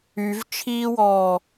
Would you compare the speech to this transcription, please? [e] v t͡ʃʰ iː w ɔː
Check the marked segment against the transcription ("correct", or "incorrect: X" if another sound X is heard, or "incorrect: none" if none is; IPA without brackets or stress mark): incorrect: y